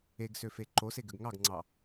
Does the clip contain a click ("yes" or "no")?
yes